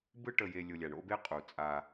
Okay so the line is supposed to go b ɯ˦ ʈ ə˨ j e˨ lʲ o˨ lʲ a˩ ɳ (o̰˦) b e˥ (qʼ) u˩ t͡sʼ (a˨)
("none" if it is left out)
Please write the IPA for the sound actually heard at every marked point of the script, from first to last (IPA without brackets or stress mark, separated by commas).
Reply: o̰˦, qʼ, a˨